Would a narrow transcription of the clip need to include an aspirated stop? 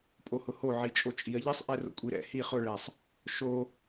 no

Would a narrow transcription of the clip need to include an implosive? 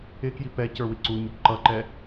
no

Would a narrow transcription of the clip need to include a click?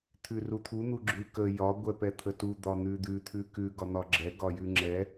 yes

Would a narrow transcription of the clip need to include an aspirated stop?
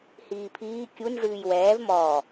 yes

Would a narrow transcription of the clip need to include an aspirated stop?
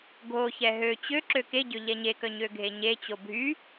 no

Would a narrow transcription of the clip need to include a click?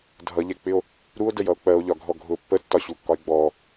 no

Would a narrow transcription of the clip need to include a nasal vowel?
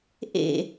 no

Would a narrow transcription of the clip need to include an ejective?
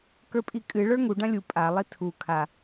yes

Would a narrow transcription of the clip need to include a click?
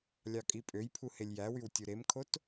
no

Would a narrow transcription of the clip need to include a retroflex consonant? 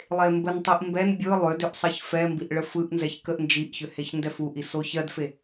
yes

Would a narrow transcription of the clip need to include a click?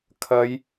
no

